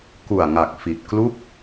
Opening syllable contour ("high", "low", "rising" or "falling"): low